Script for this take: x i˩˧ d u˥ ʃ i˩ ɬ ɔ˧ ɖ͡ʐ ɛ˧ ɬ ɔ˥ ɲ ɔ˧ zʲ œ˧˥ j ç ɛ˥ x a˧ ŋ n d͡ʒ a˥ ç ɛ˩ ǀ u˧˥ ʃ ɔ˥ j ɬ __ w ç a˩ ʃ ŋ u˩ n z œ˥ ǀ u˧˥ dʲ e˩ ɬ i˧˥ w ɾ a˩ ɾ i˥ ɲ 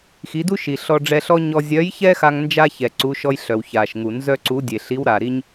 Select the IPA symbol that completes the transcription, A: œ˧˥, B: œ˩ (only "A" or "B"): B